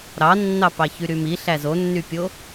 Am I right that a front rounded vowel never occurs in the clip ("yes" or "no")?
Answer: no